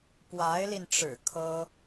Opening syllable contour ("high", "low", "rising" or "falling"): rising